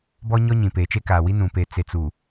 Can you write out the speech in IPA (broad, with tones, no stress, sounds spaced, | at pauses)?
b ɔ˦ ɲ ɔ˦ ɲ ĩ˨ p eː˨ t͡ʃ e˦ k aː˨ w i˦ n ũ˨ p e˨ t͡s e˨ t͡s u˨